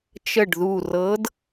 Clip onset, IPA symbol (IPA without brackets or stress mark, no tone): t͡ʃ